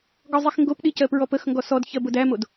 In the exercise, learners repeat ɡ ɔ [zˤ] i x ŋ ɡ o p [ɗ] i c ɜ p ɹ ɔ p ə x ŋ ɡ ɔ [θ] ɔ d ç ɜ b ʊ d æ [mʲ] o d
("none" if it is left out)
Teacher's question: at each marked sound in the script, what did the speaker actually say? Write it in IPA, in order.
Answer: zˤ, ɗ, s, m

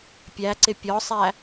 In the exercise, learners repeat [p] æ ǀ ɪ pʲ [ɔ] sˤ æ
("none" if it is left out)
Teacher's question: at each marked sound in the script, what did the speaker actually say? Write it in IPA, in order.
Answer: pʲ, ɔ

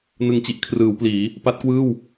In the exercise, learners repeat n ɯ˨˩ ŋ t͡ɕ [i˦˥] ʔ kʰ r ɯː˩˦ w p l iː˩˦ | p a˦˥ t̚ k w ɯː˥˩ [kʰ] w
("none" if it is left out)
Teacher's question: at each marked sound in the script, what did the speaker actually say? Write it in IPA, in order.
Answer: i˦˥, none

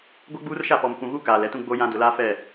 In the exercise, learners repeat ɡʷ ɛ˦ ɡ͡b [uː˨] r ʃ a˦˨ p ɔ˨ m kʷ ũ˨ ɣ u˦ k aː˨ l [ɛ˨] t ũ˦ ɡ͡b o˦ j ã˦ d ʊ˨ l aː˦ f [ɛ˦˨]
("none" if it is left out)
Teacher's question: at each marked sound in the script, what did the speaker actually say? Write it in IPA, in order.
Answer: uː˦, ɛ˨, ɛ˦˨

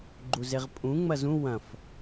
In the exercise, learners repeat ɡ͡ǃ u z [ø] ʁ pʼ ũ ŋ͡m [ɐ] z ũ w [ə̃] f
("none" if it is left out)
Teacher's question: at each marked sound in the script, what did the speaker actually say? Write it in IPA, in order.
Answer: e, ɐ, ɐ̃

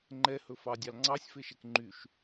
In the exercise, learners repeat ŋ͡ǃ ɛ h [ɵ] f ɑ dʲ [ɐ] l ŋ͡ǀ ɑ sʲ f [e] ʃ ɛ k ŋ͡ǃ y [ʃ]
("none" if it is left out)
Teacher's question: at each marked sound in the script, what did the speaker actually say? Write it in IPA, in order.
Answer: ɵ, ɑ, e, ʃ

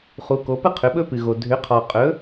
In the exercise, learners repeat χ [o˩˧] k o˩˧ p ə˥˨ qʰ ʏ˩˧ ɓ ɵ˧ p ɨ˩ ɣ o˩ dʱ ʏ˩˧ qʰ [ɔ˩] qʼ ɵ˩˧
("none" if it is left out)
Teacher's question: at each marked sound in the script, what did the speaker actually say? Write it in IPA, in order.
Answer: u˩˧, ɔ˩

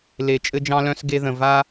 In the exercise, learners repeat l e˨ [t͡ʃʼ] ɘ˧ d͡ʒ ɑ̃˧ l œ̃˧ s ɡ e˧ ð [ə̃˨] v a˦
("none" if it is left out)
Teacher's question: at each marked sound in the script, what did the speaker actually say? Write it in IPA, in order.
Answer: t͡ʃʼ, ə̃˨

